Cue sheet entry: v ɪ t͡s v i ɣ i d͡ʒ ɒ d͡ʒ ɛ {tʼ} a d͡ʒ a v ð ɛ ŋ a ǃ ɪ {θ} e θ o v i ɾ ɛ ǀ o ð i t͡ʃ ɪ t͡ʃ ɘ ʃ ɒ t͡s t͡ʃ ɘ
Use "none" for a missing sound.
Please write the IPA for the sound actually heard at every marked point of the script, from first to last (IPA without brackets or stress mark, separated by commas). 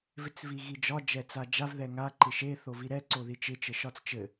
t͡s, ʃ